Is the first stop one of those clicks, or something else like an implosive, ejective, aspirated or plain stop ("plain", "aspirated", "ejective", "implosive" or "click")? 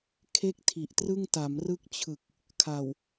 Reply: aspirated